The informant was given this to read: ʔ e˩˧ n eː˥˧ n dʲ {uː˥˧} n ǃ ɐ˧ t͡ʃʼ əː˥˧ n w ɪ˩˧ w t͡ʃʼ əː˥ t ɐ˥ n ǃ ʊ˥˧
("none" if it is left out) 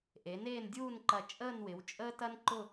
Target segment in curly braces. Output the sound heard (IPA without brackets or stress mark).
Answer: uː˥˧